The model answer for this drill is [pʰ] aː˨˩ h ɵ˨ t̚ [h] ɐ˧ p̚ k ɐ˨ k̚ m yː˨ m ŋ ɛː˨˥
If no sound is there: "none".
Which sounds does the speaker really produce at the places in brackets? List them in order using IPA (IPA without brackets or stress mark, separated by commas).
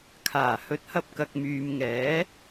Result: kʰ, h